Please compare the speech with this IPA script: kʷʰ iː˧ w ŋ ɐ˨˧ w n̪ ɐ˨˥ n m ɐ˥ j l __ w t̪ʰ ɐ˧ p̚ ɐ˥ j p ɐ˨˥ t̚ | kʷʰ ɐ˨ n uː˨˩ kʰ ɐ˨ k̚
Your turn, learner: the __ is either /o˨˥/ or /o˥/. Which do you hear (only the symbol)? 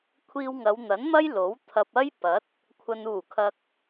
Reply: o˨˥